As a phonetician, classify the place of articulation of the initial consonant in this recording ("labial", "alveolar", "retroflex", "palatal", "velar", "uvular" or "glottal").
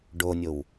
retroflex